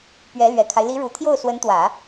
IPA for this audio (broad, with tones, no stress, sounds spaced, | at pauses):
p ɥ ɛ˧˥ l ɥ ɛ˨˩ kʰ a˦ ɪ̯ l i˧˥ ɻ u˨˩ t̪ʰ j o˥˩ ʊ̯ s w ə˧˥ n t̪ w ä˨˩˦